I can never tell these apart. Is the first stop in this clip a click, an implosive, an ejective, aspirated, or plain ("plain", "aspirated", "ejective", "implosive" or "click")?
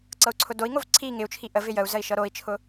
click